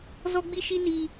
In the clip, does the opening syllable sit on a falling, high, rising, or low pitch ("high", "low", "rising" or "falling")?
high